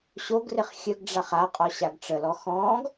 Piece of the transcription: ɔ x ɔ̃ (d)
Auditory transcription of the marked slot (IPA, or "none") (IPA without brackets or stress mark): ɡ